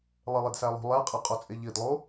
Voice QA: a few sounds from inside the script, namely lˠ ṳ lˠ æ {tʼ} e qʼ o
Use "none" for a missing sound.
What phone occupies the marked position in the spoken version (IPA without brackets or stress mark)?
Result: qʼ